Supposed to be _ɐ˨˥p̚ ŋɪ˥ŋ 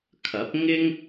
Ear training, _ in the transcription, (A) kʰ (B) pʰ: A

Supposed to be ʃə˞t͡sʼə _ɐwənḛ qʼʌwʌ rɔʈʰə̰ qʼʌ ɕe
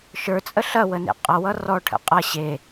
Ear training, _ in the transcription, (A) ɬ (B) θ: A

